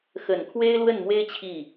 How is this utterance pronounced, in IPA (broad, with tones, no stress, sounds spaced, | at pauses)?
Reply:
x ə˨˩ n kʰ w e˥ ɪ̯ l w ə˥˩ n m w e˥ ɪ̯ t͡ɕʰ i˥˩